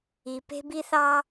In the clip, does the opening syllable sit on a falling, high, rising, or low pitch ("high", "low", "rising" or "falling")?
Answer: low